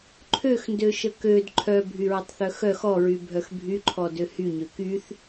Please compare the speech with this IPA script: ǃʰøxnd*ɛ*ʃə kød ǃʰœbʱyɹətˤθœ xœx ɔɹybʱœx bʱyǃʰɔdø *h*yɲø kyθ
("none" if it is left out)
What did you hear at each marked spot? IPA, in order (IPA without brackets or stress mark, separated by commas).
ø, h